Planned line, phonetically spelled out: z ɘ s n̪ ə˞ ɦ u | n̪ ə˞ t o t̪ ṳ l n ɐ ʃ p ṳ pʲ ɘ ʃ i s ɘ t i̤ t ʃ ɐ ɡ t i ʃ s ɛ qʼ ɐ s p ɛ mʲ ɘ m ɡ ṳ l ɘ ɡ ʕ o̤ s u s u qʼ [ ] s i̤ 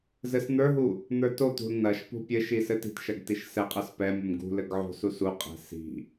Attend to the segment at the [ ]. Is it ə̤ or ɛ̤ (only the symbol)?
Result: ɛ̤